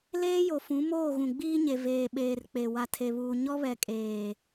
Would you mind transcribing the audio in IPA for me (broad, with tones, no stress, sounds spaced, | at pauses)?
l eː˦ j o˨ f ũ˨˦ m oː˦˨ ɣ ũ˨ ɡ͡b iː˦ ɲ e˨ v eː˨ ɓ eː˨ r k͡p e˨ w a˨ tʰ e˨ β uː˨ ɲ ɔ˦ β ɛ˨ kʼ eː˨